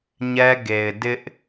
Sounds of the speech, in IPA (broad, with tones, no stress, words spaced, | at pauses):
ɲɛ˦ɡe˨ɪ̯ dɪ˦ʔ